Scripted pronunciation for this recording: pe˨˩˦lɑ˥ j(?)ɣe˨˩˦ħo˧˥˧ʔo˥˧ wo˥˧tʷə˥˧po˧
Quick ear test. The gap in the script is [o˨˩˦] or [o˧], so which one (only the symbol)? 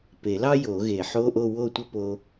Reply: o˨˩˦